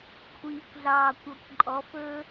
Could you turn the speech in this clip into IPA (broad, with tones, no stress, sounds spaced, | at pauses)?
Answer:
kʷʰ iː˨ kʷ ɮ ɑː˨ kʷ ɔ˨ kʷ ǃʼ ɔ˨˦ f ɵː˦